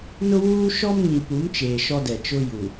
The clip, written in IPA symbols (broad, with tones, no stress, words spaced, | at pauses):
nʊ˦wuː˦ ʃɔ˦mŋĩ˨pu˨˦mt͡ʃeː˨ ʃɔ˦dɛ˨ t͡ʃʊ˦ju˨